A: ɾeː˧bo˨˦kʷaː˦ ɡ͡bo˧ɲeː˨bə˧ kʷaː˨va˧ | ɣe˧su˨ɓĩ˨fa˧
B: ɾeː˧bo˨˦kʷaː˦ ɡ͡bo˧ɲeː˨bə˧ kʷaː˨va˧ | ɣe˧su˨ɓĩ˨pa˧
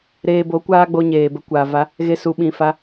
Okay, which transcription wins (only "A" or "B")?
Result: A